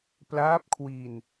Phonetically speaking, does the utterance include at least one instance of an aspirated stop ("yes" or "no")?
yes